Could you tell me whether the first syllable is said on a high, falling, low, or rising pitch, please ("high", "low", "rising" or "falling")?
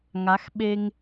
rising